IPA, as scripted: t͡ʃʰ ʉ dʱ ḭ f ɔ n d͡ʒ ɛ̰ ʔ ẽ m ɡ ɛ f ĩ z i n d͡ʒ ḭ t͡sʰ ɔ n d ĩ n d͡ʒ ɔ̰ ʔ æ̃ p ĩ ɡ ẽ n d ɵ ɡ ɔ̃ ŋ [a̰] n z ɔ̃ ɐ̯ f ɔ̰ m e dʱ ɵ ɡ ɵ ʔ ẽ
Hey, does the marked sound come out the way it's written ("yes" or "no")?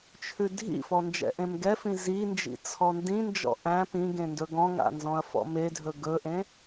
yes